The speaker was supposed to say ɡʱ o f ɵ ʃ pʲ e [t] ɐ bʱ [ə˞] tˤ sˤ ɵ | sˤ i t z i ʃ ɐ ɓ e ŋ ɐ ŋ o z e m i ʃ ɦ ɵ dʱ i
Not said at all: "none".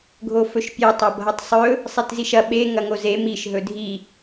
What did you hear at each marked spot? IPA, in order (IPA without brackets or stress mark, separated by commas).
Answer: tˤ, ɐ